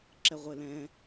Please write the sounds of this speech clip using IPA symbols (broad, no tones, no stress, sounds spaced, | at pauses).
ǁ ɛ ʁʷ e l ɛ̃